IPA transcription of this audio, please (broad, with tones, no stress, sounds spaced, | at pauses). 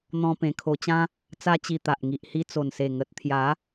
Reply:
n̪ ɔ̃˧ p ẽ˧ kʰ o˧ t͡ɕ ã˦ | t͡s a˦ t͡ɕ i˧ t̪ a˨ ʔ ŋ i˨ ʔ h i˧ t͡s o˨˩ n s e˨˩ ŋ ə˨ t̚ t̪ʰ j a˨˦